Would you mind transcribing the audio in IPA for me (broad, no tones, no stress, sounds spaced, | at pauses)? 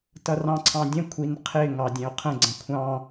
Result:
t ʌ r ɑ̃ ǀʰ ɑ̃ dʲ ə̃ kʷʰ i n qʰ ɪ ŋ ɑ dʲ ɛ̃ o̯ qʰ ə̃ ɡ͡ǀ ə̃ kʷʰ ɑ̃